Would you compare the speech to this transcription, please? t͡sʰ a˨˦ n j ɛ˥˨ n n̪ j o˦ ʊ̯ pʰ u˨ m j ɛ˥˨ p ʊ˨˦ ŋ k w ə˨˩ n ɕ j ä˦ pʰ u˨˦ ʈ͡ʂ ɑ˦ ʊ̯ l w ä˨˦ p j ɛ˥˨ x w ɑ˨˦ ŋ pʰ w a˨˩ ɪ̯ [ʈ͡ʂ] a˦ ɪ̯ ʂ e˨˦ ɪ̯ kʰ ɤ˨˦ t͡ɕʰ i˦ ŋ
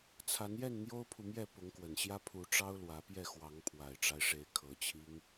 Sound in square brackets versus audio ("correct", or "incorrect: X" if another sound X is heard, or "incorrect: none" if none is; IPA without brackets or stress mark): correct